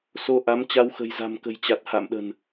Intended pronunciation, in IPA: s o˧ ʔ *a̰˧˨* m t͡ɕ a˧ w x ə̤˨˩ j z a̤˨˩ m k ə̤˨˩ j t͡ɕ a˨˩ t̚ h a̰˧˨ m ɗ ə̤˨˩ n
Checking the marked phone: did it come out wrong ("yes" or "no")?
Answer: yes